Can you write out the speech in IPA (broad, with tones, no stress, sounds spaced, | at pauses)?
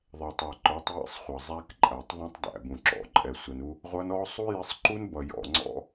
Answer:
ðˤ ɛ˨ tˤ ə˞˨ ǃ ə˞˨˦ tˤ j ɛ̰˦ sˤ χʷ ʌ˨ zˤ æ˦ k ǃʼ æ˨ tˤ ðˤ ũ˦ tˤ d æ̰˨ b ũ˨ ǁ ɔ̰˨ ǃʼ ɛ˨ sʷ ɛ˨ n u˦ | ʁʷ ʌ˦ n ɔ˦ sˤ u˦ j ɪ˦ sˤ ǃ u˦ n b ʌ˨ j ɔ̰˨ ŋ͡ǀ ɔ̰˦